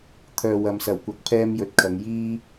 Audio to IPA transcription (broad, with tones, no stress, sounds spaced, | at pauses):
t̪ʰ œː˨ w ɐ˨ m s ɐ˨˩ w kʷ ɐ˨ k̚ pʰ ɛː˥ m j ɵ˨˥ t̚ kʰ ɐ˨˧ ŋ j iː˥